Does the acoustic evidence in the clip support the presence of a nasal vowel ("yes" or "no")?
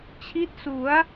no